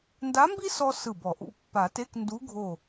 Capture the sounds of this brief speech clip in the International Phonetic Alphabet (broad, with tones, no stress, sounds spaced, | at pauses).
n d a˧˥ m b i˥ s ɔ˥ s ɯ˧˩ b ɔ˨˩˦ ʔ ṵ˧˥˧ pː a˨˩˦ t e˧˥˧ k n d u˧˥ ɡʱ o˧˩